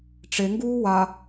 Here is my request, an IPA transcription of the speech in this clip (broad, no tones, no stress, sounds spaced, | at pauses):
ʈ͡ʂ e ŋ ɡ uː w a